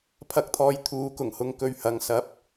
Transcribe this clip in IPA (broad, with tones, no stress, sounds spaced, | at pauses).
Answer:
pʰ ɐ˨˥ k̚ t̪ʰ ɔː˨˧ j t̪ʰ uː˨˧ k ʊ˨˩ ŋ h ʊ˧ ŋ k ɵ˨˩ ɥ h ɐ˨ ŋ s ɐ˨˥ p̚